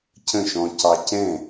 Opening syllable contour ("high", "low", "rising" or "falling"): falling